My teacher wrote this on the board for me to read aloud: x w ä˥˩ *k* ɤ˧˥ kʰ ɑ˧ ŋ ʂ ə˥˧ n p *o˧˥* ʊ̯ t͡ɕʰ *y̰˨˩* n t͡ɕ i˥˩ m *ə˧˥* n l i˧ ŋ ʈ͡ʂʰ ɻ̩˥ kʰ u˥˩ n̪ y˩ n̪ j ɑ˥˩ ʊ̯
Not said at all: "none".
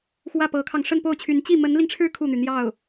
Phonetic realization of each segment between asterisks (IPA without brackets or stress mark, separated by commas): p, o˥˩, y˧˥, ə˧˥